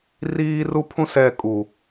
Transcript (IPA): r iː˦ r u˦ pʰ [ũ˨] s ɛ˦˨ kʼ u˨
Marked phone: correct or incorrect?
incorrect: ũ˦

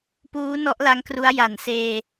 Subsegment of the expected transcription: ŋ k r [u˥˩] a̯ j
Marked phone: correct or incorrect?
incorrect: u˦˥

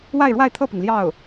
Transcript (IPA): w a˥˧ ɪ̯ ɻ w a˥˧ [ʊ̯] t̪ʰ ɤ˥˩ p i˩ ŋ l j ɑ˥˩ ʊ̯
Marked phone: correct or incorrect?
incorrect: ɪ̯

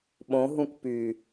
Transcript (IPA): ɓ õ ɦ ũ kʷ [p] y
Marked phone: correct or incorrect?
correct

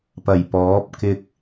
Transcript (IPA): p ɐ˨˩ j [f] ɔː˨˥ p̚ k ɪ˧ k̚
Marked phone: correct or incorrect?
incorrect: p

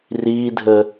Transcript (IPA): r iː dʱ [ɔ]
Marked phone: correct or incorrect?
incorrect: ə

